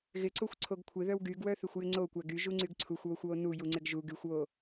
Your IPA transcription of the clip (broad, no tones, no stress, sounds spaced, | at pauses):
ɣ ɪ ǀ o xʷ ǀʰ o ɡ kʷʰ ɪ ð œ w ɡ y ɡ w œ θ e xʷ j ɪ ŋ͡ǀ o kʷ æ ɡ y ʒ u ŋ͡ǀ y ɡ ǀʰ u xʷ w o xʷ w o n u j u ŋ͡ǀ ɪ ɡ ʒ u ɡ y xʷ w o